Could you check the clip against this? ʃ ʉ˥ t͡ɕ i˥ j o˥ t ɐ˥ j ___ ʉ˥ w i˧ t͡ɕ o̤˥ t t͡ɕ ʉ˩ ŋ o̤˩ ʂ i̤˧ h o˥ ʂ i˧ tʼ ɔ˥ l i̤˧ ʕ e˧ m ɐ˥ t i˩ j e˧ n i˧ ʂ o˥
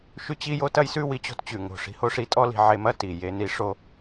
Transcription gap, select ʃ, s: s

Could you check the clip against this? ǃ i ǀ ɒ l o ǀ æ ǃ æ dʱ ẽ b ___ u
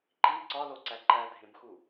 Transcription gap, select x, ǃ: x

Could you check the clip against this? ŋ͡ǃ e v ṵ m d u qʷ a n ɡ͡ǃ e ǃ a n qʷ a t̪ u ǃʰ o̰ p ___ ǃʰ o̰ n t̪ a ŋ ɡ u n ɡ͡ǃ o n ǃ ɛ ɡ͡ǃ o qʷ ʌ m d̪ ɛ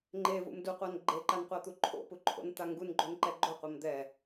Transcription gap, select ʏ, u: u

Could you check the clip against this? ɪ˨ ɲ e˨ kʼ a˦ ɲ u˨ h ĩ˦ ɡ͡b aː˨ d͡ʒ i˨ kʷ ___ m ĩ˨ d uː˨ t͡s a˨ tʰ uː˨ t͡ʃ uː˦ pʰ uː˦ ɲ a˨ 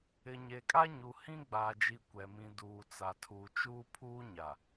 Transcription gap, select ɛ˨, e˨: ɛ˨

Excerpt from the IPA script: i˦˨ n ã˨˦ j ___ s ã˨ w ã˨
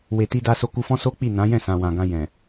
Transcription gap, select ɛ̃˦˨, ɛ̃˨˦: ɛ̃˦˨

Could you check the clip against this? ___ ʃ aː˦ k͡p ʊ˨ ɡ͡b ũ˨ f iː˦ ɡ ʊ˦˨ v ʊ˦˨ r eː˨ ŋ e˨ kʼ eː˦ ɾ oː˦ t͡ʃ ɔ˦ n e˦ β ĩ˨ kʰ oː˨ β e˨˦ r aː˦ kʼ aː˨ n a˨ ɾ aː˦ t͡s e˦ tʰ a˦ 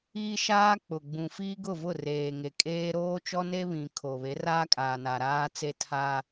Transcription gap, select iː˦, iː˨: iː˦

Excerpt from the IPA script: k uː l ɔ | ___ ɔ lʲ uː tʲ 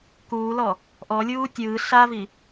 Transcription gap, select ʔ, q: ʔ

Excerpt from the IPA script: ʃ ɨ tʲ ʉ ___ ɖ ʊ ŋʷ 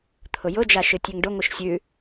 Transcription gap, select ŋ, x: ŋ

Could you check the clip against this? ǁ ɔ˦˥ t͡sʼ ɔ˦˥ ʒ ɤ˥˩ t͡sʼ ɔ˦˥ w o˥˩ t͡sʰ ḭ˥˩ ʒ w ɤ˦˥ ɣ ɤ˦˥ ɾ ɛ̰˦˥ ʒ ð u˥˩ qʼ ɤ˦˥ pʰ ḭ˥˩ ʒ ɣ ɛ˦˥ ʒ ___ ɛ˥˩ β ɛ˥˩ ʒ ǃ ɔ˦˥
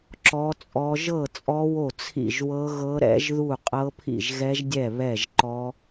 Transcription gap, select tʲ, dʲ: dʲ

